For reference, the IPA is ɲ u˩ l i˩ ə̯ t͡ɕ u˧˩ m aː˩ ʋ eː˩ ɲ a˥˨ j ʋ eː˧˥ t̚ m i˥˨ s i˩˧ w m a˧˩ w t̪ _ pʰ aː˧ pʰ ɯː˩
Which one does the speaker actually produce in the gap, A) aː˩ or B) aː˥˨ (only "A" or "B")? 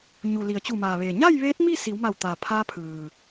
A